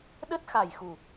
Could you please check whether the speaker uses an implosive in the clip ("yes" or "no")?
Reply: yes